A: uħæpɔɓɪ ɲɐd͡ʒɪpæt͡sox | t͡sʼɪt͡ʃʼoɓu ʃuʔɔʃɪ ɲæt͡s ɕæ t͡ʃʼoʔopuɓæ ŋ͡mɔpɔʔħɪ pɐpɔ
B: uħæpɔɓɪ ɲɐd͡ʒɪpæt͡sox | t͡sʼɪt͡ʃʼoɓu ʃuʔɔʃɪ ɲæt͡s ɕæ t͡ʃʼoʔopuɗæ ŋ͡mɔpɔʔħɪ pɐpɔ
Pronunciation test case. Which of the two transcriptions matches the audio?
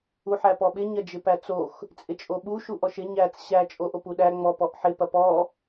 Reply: B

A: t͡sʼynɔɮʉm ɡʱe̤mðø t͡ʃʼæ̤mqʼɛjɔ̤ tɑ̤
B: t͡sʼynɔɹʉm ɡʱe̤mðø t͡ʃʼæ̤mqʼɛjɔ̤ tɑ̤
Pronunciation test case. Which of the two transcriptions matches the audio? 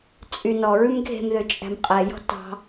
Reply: B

